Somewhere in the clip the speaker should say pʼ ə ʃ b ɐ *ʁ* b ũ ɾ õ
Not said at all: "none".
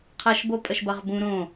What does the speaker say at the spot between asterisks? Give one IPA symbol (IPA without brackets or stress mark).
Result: ʁ